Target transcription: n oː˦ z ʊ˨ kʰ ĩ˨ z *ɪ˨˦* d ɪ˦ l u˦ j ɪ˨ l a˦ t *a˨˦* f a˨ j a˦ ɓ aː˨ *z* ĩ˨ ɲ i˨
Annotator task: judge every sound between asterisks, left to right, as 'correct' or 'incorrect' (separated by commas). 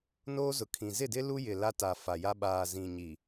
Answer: incorrect, incorrect, correct